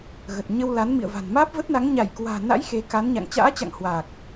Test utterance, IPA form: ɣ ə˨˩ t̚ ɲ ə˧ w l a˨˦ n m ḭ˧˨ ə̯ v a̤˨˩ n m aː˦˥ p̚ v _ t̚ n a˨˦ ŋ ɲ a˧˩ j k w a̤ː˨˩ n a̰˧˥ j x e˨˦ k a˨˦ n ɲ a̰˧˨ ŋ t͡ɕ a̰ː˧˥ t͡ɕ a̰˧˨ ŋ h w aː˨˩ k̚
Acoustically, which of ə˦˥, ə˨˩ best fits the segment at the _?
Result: ə˦˥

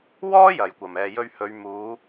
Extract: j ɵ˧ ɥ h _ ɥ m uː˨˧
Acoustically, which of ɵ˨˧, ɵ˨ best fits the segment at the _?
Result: ɵ˨˧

